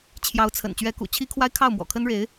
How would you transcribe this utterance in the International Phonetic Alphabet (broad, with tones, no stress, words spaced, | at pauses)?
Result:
t͡ɕʰjɑ˧˥ʊ̯t͡sʰə̰˨˩n t͡ɕɥɛ˧˥kṵ˨˩t͡ɕʰi˥kʰwa˥ɪ̯ kʰɑ˥˩ʊ̯mwɔ̰˨˩kʰə˥nɻe˧˥ɪ̯